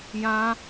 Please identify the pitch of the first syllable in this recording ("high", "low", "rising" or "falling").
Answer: high